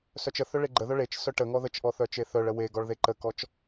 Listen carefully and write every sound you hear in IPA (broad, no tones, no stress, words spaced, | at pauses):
sœt͡ʃəθœ ɭeɡ͡ǃəðœ ɭet͡ʃ sœʈəŋɔ ðət͡ʃʔɔ θœt͡ʃeθœɭə weɡɔɭ ðeǃəkɔt͡ʃ